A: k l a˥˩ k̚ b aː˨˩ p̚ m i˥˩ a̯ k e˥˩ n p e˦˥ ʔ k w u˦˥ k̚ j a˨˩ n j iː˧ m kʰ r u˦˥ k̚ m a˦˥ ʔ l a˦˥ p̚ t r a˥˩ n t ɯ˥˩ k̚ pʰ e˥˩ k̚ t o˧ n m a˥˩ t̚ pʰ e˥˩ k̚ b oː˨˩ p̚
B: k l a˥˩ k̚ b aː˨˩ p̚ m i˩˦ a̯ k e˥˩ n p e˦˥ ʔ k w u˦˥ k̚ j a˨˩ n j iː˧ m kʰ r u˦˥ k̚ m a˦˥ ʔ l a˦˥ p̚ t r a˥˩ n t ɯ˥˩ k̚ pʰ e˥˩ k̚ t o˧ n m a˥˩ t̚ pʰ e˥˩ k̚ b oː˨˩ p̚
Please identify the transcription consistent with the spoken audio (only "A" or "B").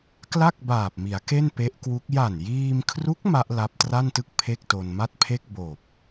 B